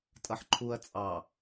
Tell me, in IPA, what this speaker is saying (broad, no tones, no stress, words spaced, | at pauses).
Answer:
tʼʌħǃʰuɐ̯ t͡sʼɑ